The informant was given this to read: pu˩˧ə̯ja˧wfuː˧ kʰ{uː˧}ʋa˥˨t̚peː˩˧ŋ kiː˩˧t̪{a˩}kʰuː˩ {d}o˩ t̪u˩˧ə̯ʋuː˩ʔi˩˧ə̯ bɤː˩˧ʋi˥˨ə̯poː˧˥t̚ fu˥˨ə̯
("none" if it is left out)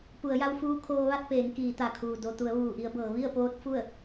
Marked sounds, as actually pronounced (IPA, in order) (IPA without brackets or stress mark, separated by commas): oː˧, a˩, d